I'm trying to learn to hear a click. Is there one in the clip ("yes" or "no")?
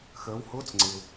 yes